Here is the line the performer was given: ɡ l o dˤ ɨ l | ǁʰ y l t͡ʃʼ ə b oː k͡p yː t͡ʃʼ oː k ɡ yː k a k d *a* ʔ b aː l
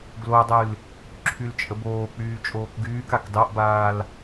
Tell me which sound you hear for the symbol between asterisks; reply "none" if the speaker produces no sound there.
ɑ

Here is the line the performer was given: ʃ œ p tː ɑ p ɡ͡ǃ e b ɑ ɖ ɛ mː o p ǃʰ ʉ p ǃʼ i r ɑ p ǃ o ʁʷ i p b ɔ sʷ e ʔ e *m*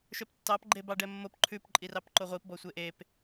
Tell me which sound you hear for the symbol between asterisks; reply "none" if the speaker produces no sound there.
p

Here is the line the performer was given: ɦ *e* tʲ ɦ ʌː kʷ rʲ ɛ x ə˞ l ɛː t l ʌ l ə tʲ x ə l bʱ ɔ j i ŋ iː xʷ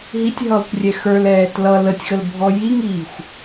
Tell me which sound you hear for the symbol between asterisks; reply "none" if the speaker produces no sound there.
i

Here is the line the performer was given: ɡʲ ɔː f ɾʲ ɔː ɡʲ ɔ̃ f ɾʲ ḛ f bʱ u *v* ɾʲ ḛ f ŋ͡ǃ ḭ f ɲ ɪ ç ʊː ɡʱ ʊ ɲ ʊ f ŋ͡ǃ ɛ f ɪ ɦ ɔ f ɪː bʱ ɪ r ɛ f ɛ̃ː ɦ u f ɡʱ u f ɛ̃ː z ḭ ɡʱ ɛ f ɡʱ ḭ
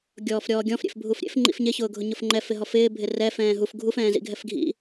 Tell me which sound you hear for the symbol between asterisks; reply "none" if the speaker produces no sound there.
f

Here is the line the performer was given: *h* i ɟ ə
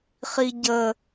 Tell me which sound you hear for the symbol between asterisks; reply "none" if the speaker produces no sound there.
χ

